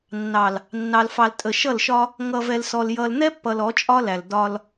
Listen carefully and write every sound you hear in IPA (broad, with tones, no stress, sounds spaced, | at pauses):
nː ɑ˨ l | nː ɑ˨ l f ɑ˨ l tʼ ə˨ ʃ ʌ˦˨ l ʃ ɒ˦ | ŋ ʌ˨ v ɛ˨ l s ɔ˨ l j ʌ˨ l n̪ ɛ˦ pː ʌ˨ l ɔ˨˦ t͡ʃʼ ɒ˦ l æ˨ l d ɒ˦ l